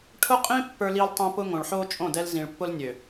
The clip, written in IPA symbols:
ʈʰ ʊ˦ qʼ ĩ˦ pː ə˞˦ l i˦ l tˤ ĩ˦ p ʊ˦ ŋ õ˨ ɭ ħ o˦ t͡ʃʼ õ˦˨ d ɛ˦ l z ĩ˨ ɭ pː ʊ˦ l nʲ ø˨

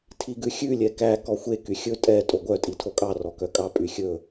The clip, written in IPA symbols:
tʰ i ɡ ʉ xʲ ʉ lʲ ɛ k æ k ɔ xʷ e k y xʲ ɵ tʼ ɛ tʼ o ɡʷ œ tʼ i tʰ o kʼ ɑ r ɔ k œ kʼ ɑ pʼ y xʲ ɵ

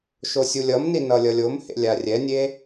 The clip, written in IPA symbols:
ʃ o sʲ u lʲ ʌ m n i n ʌ lʲ ʌ lʲ o m h ḛ lʲ a rʲ ɛ nʲ e

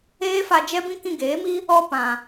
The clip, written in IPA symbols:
eː˦ f a˧ d͡ʒ ɛ˦ b ĩ˦ k ĩ˧ ɡ eː˨˦ m i˦ | ɔ˦ p ã˨

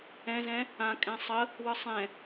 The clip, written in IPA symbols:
ɛ̃ z ɛ̃ | ã kʼ ɛ̃ sˤ ə | w ɯ sˤ ɛ̃

